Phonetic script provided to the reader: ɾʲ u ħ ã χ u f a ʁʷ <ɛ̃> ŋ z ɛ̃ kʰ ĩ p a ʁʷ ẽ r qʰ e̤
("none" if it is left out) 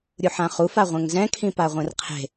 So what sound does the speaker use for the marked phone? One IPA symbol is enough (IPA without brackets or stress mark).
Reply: ɛ̃